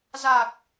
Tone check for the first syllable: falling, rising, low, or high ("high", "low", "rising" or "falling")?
low